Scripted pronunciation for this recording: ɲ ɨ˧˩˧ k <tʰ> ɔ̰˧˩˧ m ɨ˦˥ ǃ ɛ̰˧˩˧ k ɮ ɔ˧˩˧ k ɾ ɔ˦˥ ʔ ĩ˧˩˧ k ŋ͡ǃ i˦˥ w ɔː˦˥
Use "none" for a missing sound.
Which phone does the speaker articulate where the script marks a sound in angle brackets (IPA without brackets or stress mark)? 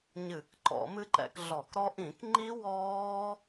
ǃ